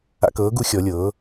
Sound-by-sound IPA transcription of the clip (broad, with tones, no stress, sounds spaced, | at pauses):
a̰˧ k ɤː˨˥ ɡ u˨˥ xʲ ɔ˨˥ lʲ ɤː˨˥